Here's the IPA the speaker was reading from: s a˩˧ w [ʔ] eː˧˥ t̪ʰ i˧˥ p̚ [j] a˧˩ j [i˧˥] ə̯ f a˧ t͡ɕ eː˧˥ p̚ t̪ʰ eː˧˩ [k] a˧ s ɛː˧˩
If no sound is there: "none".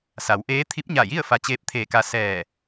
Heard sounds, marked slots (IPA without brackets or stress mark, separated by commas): ʔ, ɲ, i˥˨, k